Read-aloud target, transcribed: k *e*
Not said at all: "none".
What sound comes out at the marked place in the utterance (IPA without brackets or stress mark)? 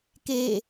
e